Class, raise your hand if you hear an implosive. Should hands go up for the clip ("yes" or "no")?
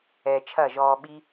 yes